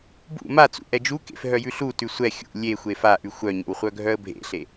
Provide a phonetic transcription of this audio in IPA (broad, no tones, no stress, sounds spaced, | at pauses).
b ṵ m a t͡s ṵ ʔ ɛ d͡ʒ u k ḛ f ɦ œ j ʉ ɬ u t ʉ sʷ ɛ xʲ ṵ lʲ e xʷ e f a ʔ ʉ xʷ œ ɲ ḛ w χʷ œ ɡʱ œ ə̯ bʱ ḛ ɬ e